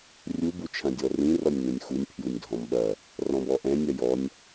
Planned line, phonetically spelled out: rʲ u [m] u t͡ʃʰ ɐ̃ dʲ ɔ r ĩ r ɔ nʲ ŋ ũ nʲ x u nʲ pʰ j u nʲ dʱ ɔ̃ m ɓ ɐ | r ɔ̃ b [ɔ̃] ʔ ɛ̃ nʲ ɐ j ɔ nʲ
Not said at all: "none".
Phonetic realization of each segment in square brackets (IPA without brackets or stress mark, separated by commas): b, ɔ